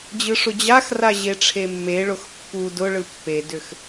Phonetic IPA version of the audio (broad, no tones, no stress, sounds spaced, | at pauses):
d͡ʑ ɯ ʂ ʊ d͡ʑ a x r a ʑ e ʈ͡ʂʰ e mː e ɭ ʊ x pː u d ʊ ɭ ɯ pː e d ʏ x